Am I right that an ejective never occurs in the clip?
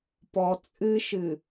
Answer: no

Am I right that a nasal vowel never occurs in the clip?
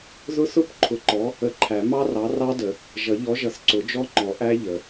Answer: yes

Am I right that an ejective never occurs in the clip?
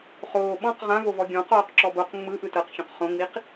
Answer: yes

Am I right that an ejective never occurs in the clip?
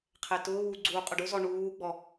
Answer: no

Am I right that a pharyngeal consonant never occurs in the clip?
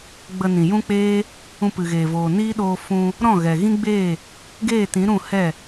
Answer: yes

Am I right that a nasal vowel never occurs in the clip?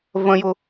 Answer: no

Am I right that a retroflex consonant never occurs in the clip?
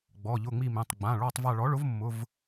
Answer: no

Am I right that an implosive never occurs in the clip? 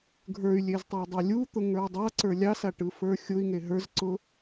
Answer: yes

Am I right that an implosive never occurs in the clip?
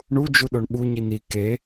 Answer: no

